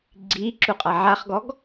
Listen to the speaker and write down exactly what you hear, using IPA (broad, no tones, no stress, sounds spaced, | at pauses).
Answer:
ɡ͡ǀ i ǁ u qʼ a ʕ a χ ɡ ɔ ɡ